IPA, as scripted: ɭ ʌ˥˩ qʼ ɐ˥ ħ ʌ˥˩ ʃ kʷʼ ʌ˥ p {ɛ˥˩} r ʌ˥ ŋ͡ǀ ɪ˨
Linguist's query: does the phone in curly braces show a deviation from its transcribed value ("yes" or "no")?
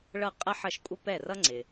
no